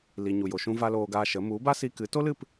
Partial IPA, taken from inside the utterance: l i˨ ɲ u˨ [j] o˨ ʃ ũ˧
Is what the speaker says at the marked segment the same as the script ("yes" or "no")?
yes